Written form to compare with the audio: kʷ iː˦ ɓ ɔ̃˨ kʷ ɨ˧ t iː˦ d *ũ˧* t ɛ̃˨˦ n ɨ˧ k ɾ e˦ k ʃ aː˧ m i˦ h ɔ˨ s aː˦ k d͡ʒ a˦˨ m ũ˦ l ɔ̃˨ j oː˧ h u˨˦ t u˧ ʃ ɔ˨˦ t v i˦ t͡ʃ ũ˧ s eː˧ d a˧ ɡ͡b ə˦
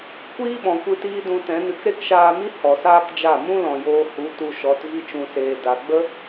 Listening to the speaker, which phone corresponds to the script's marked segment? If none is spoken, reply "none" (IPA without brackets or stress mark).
ũ˧